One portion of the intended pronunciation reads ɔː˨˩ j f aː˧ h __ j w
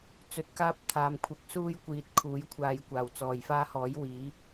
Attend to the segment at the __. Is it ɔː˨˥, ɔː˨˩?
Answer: ɔː˨˥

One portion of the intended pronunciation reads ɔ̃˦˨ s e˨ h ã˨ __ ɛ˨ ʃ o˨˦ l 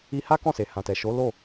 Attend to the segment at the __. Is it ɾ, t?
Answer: t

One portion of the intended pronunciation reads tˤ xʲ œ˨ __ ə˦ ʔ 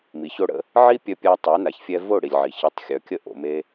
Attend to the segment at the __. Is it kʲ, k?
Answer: kʲ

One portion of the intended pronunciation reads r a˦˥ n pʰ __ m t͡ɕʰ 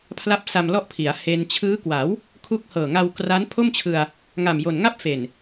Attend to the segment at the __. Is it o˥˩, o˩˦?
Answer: o˥˩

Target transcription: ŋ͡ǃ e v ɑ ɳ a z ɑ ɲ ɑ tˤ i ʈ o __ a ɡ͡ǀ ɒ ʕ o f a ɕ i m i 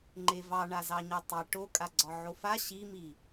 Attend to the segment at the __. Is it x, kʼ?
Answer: kʼ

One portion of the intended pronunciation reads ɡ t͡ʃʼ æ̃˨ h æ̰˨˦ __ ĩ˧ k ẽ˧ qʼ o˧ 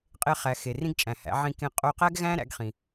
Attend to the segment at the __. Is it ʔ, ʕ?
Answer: ʕ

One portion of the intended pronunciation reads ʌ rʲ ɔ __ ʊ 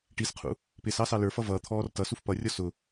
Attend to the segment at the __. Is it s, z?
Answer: s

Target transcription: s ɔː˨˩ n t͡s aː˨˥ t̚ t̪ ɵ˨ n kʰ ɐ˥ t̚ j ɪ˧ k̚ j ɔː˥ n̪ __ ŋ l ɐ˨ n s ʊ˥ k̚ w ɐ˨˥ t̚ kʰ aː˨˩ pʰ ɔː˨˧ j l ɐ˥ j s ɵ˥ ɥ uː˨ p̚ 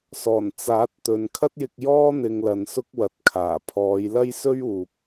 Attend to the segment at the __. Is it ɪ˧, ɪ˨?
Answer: ɪ˧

